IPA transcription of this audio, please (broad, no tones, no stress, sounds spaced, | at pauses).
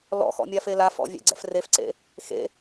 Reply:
l ɔ̰ x ɔ̰ mʲ a f e l a f ɔ̰ vʲ ɛ̰ ɡ͡ǀ ɛ̰ f r e f ǀ ḛ | x ḛ